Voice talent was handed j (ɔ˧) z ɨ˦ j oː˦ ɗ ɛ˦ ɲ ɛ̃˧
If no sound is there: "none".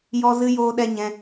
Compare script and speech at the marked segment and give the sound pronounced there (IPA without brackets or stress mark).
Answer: ɔ˦